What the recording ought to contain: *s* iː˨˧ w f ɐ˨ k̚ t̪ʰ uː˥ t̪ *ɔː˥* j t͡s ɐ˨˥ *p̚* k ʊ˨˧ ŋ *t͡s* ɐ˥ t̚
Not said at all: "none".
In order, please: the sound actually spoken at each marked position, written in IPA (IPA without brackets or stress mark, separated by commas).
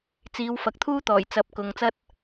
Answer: t͡s, ɔː˨˩, p̚, t͡s